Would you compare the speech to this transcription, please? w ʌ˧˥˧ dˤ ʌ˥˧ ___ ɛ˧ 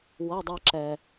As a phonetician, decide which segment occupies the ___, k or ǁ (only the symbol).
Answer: ǁ